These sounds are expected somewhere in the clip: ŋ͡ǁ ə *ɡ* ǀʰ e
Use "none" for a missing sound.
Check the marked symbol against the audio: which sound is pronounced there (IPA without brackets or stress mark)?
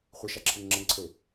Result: ŋ